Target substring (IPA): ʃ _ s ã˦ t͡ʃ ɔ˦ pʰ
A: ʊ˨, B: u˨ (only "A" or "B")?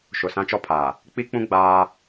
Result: A